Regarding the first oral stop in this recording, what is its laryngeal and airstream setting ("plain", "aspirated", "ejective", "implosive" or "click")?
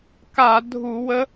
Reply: plain